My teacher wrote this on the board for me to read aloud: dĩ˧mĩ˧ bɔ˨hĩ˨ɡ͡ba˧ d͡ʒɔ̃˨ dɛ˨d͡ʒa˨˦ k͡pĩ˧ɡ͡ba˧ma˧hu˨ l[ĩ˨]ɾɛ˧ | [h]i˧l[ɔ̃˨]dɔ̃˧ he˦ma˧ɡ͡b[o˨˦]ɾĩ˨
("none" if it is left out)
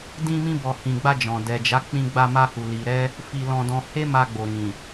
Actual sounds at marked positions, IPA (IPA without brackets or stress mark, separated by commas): i˨, f, ɔ̃˧, o˨